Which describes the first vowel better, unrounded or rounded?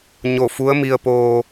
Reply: rounded